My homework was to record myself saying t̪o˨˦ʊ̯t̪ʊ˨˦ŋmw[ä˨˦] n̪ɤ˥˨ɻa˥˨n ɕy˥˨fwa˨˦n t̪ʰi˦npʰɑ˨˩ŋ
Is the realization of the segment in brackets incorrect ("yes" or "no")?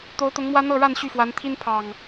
yes